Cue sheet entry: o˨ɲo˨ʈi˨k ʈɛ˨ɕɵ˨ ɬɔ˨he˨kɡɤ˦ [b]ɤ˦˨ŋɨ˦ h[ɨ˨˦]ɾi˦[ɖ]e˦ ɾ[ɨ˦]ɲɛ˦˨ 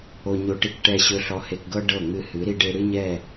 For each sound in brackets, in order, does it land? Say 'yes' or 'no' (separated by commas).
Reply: no, yes, yes, yes